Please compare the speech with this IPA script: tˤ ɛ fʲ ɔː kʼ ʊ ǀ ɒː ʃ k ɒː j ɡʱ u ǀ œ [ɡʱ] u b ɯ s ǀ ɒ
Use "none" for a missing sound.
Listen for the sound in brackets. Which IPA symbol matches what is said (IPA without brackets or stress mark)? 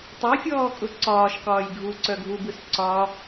ɡʱ